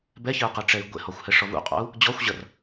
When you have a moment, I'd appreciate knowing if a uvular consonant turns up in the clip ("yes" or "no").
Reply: yes